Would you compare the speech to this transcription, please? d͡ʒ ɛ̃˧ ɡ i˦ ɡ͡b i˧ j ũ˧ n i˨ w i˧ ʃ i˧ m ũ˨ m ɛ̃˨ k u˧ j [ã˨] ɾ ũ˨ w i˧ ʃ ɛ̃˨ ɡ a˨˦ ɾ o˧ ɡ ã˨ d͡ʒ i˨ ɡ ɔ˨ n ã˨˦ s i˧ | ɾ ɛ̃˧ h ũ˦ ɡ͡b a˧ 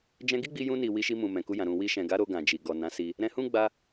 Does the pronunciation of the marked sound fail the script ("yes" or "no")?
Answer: no